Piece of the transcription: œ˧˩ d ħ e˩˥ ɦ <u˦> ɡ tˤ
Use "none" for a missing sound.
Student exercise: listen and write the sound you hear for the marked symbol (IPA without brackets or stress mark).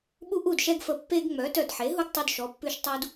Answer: u˦